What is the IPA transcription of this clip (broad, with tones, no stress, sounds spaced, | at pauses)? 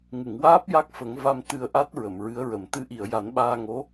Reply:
ŋ ɨ˨˩˨ ŋ w aː˦˥ p̚ j a˦˥ k̚ f ə˨˩˦ ŋ v a˧ m t̪ ɨ˧ ə̯ ʔ a˦˥ t̚ ɹ ə˨˩˨ m ɹ ɨ˧˥ ə̯ ɹ ə˨˩ m t̪ ɨ˧˥ ʔ i˨˩˨ ə̯ j a˨˩˦ n ɓ aː˧ ŋ o˧˥